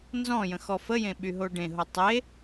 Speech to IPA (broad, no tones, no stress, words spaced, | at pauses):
nzɔ̃jə̃ xɔfəjẽ ɓyɦoɖẽɦo tˤe